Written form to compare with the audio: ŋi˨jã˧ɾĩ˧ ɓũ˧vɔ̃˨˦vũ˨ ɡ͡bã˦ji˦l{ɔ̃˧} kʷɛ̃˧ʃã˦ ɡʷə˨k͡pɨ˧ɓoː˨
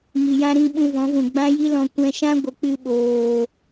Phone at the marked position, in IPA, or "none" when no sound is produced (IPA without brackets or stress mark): ɔ̃˧